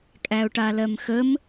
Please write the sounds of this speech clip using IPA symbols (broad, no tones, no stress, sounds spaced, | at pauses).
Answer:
kʼ æ ʊ̯ ʈ a l ɜ m x ə m